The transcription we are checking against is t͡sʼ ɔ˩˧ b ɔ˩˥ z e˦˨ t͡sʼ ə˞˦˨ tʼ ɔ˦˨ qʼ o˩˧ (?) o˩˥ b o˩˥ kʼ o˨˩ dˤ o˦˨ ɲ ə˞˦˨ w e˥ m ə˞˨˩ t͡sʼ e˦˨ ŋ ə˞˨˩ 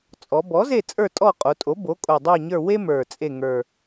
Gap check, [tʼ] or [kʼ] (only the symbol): tʼ